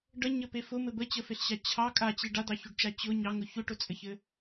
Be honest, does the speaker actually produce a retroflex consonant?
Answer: yes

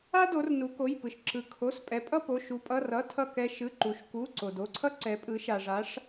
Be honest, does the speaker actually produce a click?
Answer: yes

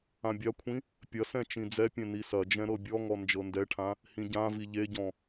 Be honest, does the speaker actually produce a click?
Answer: no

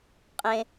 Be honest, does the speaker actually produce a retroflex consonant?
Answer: no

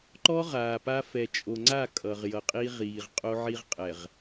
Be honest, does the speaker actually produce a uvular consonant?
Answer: yes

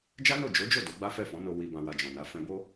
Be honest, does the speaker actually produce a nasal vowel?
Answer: yes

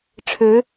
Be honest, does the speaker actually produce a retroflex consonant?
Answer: yes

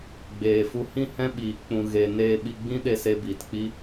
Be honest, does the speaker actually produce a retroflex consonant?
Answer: no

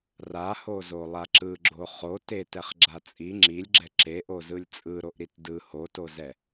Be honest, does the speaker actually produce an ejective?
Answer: yes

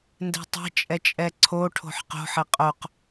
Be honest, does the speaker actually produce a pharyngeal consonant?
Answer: yes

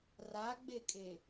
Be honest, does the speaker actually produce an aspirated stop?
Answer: no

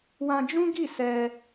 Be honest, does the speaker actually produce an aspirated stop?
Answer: no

